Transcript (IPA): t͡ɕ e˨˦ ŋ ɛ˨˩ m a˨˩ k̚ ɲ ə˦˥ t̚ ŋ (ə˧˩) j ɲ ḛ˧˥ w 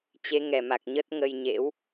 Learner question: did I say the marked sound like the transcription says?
no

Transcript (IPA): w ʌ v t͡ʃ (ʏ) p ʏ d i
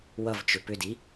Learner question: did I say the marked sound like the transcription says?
yes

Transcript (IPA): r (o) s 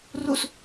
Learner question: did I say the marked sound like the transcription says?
no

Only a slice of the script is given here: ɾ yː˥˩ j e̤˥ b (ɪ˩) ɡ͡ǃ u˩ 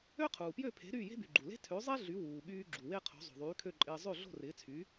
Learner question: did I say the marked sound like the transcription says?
no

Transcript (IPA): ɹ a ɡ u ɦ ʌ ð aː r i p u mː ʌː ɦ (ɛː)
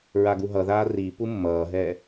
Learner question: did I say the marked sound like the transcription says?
yes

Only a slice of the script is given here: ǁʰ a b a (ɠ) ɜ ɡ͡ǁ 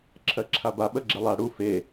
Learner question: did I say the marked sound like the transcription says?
no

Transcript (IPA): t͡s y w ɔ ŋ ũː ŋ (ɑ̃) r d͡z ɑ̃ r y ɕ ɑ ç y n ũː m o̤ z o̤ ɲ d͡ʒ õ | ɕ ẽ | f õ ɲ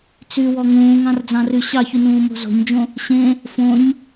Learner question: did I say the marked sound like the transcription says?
yes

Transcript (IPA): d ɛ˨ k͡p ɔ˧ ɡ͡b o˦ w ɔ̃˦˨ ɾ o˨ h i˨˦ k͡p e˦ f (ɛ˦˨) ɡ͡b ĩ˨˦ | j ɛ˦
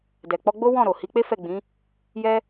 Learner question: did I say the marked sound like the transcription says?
yes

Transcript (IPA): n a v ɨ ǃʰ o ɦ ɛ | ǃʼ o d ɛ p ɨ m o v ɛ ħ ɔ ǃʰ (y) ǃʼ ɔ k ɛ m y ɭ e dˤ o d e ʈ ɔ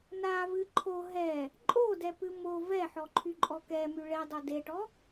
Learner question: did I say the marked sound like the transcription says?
yes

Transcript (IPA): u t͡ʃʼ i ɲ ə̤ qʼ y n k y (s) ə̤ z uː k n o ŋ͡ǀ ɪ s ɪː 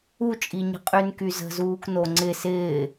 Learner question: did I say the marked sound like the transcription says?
no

